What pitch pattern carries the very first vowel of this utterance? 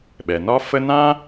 low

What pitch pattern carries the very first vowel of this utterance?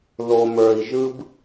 low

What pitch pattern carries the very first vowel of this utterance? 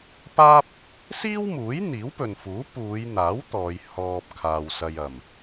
high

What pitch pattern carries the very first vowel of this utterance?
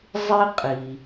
high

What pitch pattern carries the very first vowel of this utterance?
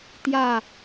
falling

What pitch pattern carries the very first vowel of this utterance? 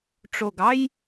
low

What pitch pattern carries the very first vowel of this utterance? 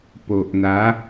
low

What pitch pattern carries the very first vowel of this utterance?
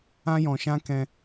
high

